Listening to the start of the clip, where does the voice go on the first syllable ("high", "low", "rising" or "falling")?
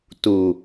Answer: low